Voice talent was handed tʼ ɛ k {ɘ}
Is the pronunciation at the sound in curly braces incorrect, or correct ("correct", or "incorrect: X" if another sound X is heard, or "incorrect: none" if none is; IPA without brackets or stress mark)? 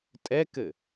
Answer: correct